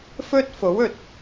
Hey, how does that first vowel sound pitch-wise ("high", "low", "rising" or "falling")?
high